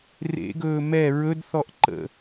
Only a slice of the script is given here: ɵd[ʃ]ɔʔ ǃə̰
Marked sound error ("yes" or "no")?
yes